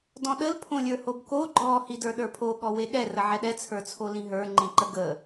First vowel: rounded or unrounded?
rounded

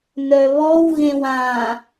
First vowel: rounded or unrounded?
rounded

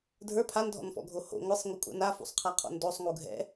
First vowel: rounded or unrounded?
unrounded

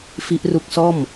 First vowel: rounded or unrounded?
unrounded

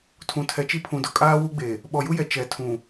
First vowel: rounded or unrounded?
rounded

